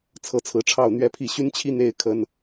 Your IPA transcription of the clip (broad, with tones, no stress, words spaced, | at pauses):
t͡sʰɤ˨˦t͡sʰɹ̩˨˦ʈ͡ʂʰɑ˥˨ʊ̯ n̪ɥɛ˥˨pʰi˥˨ ɕy˦nt͡ɕʰi˦ n̪e˦ɪ̯ kʰə˦n